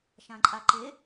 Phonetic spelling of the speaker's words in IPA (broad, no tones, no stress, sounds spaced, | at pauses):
ʃ ã ǃʼ a ǃ e